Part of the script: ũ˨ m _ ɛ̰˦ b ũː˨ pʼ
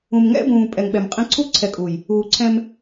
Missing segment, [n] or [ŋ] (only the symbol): ŋ